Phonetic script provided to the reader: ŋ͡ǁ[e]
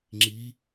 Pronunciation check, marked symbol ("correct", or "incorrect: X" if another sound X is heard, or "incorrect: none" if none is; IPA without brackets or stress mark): incorrect: i